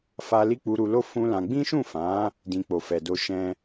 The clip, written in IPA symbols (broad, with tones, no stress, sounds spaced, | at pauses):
f a˦ l i˦ k͡p u˧ ɾ u˧ l o˦ f ũ˦ l ã˧ ɡ͡b ĩ˦ ʃ ũ˦˨ f ã˨˦ | d ĩ˦ k͡p o˧ f ɛ˧ d o˦ ʃ ɛ̃˦